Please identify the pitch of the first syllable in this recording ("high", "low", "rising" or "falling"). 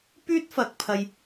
high